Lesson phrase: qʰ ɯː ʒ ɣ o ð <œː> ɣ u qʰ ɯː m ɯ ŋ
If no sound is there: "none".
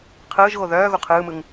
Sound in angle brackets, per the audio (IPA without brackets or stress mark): œː